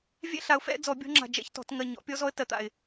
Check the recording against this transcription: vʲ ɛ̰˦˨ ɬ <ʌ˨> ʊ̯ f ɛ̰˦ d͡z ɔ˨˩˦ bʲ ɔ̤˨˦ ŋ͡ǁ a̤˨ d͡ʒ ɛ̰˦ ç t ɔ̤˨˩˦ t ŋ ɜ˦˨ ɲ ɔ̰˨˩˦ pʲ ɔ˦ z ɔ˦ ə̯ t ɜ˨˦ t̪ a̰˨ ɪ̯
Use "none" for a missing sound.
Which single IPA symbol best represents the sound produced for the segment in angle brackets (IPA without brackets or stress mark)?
a˨